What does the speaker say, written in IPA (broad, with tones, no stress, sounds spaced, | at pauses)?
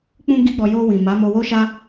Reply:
k͡p ũ˦ ɡ i˦ ɡ͡b ɔ˧ j o˧ w ĩ˨ m a˨˦ m o˧ w o˦ ʃ a˦